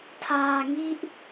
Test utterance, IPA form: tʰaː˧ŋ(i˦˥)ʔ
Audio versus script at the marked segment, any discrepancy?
no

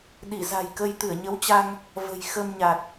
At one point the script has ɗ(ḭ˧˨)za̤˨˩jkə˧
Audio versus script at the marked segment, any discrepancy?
yes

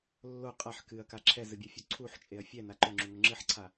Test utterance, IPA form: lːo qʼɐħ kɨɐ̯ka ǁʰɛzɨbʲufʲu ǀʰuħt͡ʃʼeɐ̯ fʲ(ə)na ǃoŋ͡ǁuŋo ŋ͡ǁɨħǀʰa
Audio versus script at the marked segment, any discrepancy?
yes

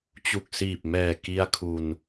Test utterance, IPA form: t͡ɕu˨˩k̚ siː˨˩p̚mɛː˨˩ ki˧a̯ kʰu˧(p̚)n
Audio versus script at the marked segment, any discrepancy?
yes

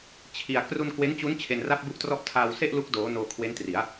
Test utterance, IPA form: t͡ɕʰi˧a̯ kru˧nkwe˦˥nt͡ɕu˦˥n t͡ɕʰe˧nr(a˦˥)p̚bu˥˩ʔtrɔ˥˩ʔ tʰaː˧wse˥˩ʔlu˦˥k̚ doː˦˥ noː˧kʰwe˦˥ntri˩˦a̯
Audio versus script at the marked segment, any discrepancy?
yes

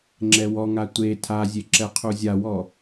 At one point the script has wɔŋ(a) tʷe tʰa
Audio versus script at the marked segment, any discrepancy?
no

